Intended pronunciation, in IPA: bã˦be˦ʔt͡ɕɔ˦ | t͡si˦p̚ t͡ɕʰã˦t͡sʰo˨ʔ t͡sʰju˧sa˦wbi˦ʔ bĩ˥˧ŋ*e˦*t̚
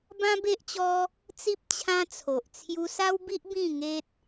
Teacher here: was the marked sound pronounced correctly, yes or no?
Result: yes